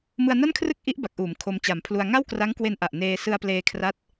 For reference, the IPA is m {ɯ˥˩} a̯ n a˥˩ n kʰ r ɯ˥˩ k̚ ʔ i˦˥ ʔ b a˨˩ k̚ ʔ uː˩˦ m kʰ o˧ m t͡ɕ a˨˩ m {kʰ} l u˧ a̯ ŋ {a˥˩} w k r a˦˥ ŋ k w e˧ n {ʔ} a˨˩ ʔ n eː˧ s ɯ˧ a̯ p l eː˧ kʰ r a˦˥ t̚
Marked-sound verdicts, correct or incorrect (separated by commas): incorrect, incorrect, correct, correct